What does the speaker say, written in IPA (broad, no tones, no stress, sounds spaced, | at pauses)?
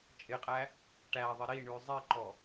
t͡ʃʼ ɪ qʼ æ | ʈ æ ðˤ ɪ ɾ i ɳ ʉ zˤ i ǃ ɔ